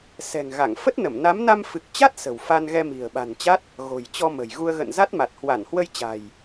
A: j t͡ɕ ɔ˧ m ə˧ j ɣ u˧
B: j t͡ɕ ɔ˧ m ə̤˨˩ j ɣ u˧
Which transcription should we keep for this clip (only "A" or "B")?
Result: B